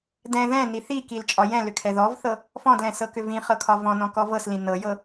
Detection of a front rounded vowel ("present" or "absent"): present